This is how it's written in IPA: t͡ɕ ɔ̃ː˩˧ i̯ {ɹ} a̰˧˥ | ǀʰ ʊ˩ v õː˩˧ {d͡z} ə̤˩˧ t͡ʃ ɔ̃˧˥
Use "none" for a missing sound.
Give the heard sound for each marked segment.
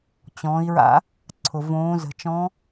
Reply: ɹ, z

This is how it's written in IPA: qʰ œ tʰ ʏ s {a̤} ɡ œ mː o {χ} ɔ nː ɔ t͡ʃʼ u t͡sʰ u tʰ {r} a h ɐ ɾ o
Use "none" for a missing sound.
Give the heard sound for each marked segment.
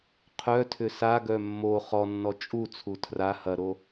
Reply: a, χ, r

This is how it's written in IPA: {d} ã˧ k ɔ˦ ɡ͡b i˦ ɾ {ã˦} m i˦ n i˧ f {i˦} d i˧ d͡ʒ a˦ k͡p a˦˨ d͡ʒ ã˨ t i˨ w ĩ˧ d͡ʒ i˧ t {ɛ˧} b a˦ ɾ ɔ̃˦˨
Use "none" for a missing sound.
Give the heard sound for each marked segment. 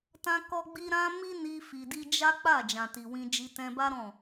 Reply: t, ã˦, i˨, ɛ̃˧

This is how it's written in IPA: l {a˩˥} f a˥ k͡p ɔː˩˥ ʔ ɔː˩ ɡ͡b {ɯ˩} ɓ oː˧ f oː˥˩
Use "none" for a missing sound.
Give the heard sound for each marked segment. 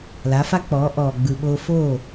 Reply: a˩˥, ɯ˩

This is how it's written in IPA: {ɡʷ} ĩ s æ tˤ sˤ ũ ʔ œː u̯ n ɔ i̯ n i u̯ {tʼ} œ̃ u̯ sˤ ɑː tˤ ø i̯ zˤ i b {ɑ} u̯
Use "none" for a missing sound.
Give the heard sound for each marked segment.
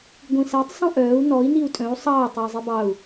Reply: ɡʷ, tʼ, ɑ

